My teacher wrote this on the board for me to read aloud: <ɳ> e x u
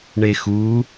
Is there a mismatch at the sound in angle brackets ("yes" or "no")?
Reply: no